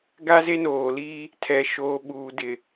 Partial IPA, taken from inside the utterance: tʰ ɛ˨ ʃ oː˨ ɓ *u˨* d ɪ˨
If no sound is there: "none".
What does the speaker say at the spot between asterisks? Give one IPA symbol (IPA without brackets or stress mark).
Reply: uː˨